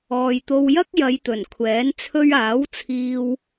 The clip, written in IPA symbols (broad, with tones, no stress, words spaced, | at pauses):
ɔː˨jt̪o˧wjɐ˥k̚ jɐ˨˧jt̪ɵ˨˩nkʷʰɛː˨˥n t͡sʰɵ˧ɥaː˨˥wt͡sʰiː˧w